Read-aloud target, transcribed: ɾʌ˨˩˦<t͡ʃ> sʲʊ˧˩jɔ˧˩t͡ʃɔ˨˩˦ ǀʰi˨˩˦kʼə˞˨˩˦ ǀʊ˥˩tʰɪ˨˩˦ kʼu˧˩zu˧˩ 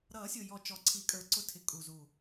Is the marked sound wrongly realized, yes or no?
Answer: yes